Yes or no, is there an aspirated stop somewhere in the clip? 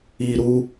no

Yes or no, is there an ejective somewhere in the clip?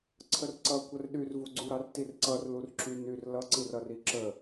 no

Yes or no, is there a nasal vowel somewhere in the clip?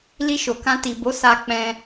yes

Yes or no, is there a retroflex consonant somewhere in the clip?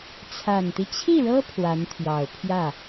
yes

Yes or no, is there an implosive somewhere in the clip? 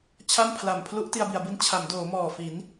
no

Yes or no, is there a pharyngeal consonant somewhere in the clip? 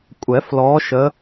no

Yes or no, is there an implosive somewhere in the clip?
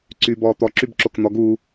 no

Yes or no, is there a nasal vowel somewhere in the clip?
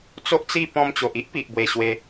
yes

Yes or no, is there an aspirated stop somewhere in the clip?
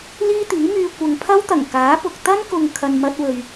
yes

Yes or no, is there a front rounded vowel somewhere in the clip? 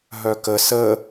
yes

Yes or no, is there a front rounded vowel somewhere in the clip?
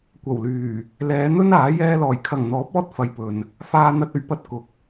yes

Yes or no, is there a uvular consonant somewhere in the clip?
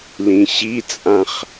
yes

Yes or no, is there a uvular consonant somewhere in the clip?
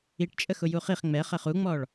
yes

